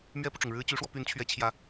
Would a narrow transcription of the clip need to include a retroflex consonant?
yes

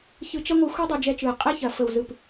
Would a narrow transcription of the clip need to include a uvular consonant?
yes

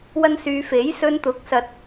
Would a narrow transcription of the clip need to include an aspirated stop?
no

